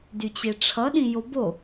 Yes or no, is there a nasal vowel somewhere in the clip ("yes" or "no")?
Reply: yes